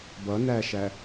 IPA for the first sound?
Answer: b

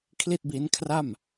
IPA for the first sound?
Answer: kʰ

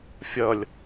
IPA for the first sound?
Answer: fʲ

